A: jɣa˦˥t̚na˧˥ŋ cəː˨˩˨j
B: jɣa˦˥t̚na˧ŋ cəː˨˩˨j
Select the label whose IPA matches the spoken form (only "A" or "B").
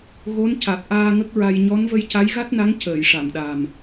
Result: A